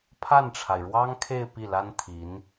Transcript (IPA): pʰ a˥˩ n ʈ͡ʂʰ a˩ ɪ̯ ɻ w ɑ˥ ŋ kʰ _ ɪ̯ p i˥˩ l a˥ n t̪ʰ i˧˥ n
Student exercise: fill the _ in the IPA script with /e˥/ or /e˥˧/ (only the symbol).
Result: e˥˧